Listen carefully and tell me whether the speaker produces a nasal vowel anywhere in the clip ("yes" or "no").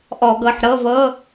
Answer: no